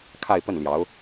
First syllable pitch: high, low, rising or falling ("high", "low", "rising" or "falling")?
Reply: falling